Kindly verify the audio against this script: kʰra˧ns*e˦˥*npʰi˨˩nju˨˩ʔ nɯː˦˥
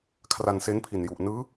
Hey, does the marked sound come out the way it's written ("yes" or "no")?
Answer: yes